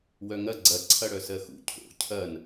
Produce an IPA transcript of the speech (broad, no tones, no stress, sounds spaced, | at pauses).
w œ ŋ ɐ ɡ͡ǀ ɐ ǀʰ ɐ ɽ œ s ɜ x ṵ cʰ o̰ cʰ ɐ n